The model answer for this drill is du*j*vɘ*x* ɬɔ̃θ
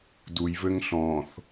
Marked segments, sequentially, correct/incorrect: correct, incorrect: ŋ

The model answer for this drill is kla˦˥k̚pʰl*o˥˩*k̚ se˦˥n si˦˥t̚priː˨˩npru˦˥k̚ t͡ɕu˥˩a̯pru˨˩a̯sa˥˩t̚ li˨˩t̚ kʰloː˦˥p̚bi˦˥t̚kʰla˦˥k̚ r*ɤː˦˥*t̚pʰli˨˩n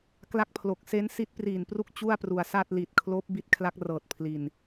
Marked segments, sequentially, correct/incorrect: incorrect: o˨˩, incorrect: ɤː˨˩

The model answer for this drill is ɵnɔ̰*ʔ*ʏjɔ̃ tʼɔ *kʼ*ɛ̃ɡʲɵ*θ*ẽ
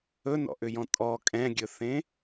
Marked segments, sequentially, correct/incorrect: correct, correct, correct

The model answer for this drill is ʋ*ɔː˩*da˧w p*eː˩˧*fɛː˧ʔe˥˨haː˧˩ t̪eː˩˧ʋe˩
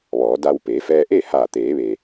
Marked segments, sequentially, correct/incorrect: incorrect: ɔː˩˧, correct

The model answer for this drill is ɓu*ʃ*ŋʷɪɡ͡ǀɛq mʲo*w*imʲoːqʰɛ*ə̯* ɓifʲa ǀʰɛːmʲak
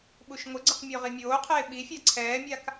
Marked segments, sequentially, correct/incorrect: correct, incorrect: ʁ, incorrect: ɪ̯

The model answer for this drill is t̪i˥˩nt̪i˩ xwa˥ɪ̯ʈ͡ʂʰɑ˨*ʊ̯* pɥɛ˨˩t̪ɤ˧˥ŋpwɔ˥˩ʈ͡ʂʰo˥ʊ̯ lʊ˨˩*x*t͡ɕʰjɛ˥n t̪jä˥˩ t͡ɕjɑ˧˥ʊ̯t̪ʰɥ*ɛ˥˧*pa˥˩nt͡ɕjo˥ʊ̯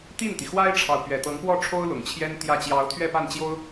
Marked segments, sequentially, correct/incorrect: correct, incorrect: ŋ, correct

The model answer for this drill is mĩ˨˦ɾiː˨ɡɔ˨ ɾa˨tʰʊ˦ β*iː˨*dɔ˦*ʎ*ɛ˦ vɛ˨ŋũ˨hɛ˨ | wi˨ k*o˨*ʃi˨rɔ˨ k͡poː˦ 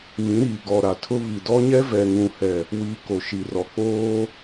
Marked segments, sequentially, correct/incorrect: incorrect: i˨, incorrect: ɲ, correct

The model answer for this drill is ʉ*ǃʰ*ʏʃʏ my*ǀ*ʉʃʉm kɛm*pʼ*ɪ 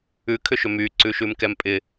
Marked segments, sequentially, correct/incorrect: incorrect: kʰ, correct, correct

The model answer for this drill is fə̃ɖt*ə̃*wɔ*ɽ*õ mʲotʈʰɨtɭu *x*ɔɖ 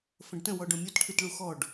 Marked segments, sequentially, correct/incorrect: correct, incorrect: ɖ, correct

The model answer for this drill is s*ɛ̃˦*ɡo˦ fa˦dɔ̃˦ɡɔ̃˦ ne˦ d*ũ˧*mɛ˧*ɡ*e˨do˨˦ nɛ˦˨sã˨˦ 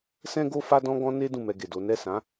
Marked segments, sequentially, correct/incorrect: correct, incorrect: ũ˦˨, correct

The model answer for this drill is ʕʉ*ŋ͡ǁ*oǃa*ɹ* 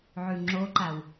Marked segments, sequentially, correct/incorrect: correct, incorrect: w

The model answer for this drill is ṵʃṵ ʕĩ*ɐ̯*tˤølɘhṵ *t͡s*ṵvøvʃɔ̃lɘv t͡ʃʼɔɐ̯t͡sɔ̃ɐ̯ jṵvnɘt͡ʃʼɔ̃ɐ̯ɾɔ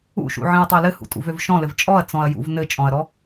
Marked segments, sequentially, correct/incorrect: correct, incorrect: tʼ

